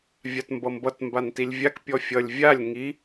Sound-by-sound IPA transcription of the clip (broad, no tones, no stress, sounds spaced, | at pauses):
vʲ a t m b ʌ m b ʌ t m b a n t i lʲ vʲ a k pʲ ɔ fʲ ʌ lʲ vʲ a lʲ ŋ i